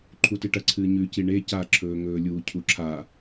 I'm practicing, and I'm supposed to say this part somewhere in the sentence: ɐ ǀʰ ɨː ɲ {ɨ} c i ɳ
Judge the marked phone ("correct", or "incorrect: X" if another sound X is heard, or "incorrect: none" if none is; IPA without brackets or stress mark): incorrect: ʉ